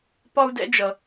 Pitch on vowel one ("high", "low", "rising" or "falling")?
high